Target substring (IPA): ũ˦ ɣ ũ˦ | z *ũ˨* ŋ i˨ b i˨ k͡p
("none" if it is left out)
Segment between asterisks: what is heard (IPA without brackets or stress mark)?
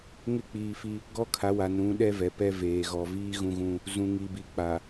ũ˨